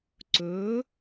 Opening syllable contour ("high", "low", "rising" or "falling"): rising